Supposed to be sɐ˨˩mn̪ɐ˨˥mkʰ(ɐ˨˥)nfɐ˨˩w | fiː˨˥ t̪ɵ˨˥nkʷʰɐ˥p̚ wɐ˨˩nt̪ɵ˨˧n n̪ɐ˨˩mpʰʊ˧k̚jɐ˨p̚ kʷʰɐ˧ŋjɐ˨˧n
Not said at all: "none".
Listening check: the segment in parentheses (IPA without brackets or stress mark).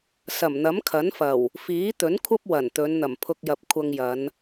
ɐ˨˥